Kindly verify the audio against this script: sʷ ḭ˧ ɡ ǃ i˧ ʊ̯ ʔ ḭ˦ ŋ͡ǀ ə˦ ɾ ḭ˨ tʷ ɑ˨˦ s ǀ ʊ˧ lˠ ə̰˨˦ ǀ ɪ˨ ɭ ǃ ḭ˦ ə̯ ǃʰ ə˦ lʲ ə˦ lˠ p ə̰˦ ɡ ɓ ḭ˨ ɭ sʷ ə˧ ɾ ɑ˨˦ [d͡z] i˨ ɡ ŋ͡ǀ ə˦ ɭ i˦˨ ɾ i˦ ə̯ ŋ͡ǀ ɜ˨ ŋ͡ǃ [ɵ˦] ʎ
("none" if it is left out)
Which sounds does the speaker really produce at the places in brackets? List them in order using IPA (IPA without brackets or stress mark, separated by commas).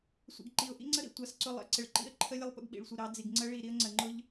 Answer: d͡z, ʊ˦